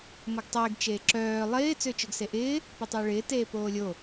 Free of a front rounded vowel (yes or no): no